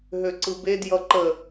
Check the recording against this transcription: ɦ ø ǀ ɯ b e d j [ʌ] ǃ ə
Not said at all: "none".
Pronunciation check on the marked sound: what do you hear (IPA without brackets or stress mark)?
ʌ